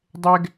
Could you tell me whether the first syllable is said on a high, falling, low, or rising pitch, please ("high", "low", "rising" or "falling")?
high